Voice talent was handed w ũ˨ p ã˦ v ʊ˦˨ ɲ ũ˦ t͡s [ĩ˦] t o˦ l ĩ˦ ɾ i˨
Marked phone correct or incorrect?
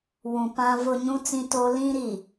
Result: correct